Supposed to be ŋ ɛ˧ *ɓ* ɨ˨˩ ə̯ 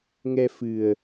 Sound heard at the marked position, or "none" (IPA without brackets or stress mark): f